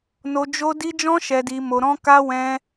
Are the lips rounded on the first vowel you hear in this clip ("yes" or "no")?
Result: yes